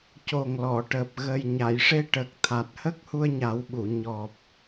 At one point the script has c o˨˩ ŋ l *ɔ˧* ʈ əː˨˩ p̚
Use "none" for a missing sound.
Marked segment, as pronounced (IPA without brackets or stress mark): ɔ˨˩˨